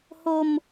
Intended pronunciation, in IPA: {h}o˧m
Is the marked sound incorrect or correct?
correct